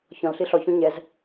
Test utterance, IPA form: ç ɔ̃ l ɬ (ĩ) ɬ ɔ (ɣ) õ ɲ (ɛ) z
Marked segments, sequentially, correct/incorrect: incorrect: i, incorrect: ç, correct

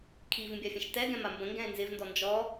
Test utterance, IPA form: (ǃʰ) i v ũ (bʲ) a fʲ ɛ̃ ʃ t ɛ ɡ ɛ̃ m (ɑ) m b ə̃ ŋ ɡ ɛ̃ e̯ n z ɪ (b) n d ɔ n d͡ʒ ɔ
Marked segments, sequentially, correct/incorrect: incorrect: kʰ, correct, incorrect: a, incorrect: v

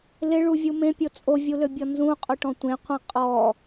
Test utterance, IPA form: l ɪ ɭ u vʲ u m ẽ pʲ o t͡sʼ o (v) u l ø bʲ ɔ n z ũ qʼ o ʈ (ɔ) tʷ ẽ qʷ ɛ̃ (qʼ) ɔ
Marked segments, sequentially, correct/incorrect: incorrect: vʲ, incorrect: ɔ̃, correct

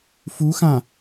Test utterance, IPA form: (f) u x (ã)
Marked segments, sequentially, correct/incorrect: correct, correct

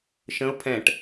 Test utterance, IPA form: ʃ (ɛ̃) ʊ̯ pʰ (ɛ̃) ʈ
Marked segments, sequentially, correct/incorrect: incorrect: ə̃, correct

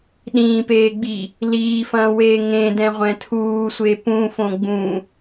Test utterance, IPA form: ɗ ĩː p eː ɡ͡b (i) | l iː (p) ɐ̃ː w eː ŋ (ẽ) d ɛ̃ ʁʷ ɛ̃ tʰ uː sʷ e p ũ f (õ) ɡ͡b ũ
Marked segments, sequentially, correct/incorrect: correct, incorrect: f, correct, correct

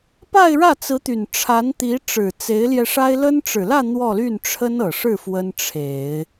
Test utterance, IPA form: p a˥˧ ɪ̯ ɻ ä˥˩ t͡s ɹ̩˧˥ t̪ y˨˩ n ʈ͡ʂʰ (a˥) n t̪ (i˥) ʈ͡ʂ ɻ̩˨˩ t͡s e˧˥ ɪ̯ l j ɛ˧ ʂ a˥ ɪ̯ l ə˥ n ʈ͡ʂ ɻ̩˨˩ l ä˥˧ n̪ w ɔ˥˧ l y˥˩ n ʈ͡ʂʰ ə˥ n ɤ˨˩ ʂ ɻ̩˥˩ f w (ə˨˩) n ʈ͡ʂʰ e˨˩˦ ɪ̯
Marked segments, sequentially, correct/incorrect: incorrect: a˧˥, incorrect: i˧˥, incorrect: ə˥

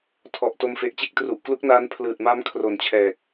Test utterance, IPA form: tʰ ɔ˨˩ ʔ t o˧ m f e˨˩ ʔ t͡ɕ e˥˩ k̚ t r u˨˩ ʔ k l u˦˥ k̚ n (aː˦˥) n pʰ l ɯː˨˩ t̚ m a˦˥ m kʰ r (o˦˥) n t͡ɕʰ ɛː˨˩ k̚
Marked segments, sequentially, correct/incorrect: correct, incorrect: o˨˩

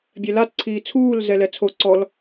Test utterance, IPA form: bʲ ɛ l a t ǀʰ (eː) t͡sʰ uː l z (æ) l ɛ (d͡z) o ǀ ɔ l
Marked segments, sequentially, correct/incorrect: incorrect: iː, incorrect: ɛ, incorrect: t͡sʰ

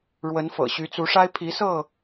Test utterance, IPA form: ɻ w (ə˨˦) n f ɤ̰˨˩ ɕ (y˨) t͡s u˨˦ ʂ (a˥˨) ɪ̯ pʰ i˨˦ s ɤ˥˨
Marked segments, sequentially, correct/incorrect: correct, incorrect: y˨˦, incorrect: a˦

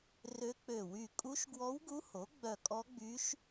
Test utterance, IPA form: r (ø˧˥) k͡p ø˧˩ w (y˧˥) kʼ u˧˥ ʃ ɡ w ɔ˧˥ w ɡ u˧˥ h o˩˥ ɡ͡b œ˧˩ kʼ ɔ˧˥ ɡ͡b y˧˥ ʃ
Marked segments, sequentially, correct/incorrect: correct, incorrect: y˧˩

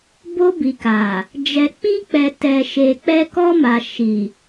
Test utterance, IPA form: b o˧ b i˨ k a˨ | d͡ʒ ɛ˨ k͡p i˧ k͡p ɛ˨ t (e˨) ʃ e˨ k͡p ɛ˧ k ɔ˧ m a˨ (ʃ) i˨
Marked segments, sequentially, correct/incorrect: incorrect: ɛ˨, correct

